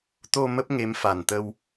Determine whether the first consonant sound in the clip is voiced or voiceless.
voiceless